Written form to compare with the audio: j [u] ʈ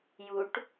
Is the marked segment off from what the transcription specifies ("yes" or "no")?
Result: no